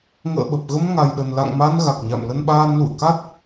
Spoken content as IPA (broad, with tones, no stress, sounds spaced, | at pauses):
ŋ ə̰ː˧˨ ɓ ə˨˩ p̚ ɣ ə˧ m ŋ a˨˩ j ɗ ə˨˩ n l a̰˧˨ ŋ m a˧ n ɣ a˨˩ k̚ ɲ a̰˧˨ m l ə˧ n ɓ aː˧ n l ṵ˧˨ ə̯ k a˦˥ t̚